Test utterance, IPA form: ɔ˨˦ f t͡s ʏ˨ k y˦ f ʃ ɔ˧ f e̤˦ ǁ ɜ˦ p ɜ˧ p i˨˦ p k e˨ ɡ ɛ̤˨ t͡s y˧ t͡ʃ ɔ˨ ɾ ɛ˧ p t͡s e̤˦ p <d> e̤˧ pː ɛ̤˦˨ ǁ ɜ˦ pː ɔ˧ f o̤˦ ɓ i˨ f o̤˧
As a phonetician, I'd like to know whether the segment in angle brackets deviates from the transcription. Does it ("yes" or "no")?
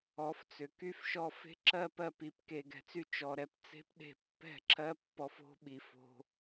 yes